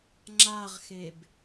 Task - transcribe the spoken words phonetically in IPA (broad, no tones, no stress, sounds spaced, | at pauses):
ŋ͡ǁ a ʁ x e b